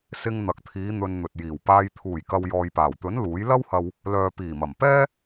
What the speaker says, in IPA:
s ɪ˧ ŋ n̪ ɐ˨ k̚ t̪ʰ iː˨˧ n̪ ɵ˧ n n̪ ɵ˨ t̚ j iː˨˩ w p aː˧ j t̪ʰ uː˨˩ j k ɐ˨ w j ɔː˨ j p aː˨˩ w t̪ ɵ˨˥ n l uː˨˥ j l ɐ˥ w h ɐ˧ w | l œː˨ p iː˨˩ m ɐ˨˩ m p ɛː˥

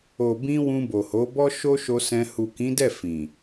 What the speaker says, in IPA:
o˨ b ĩ˧ w ũ˧ b o˨ h o˨˦ b ɔ˦ ʃ o˦ ʃ o˧ s ɛ̃˧ h u˨ k ĩ˨˦ d ɛ˦˨ f ĩ˨

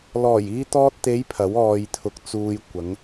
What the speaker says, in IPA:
l ɔː˨˩ j iː˧ t̪ ɔː˧ t̚ t̪ e˨˧ j pʰ ɐ˨˥ w ɔː˧ j t̪ʰ ʊ˧ k̚ t͡s uː˧ j kʷ ɐ˨˧ ŋ

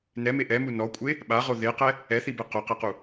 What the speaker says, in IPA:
n ɛ m e ʔ ɛ m u n ɔ kʷʼ e | ɓ a ʁ o ð e q ɛ | ɛ θ i b e q o q ɛ q u

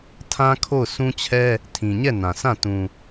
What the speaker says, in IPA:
tʰ ã˦ kʰ o˦˨ ʊ̯ s ũ˦ t͡ɕʰ ɛ˦ | tʰ ĩ˨ ɲ ɛ˦˨ n ã˨ s ã˦˨ t ũ˨

